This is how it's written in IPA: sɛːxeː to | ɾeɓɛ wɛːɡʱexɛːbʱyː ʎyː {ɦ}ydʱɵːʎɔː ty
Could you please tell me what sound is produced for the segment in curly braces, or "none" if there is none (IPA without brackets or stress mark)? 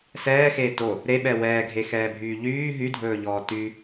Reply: ɦ